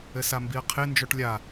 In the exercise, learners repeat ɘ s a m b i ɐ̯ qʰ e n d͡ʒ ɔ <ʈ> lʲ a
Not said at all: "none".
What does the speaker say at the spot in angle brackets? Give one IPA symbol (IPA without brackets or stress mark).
ʈ